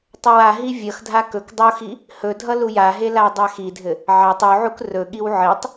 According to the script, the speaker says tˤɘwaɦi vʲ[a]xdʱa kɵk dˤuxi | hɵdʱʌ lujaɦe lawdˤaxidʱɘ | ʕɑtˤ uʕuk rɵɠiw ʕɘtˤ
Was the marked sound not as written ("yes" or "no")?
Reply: yes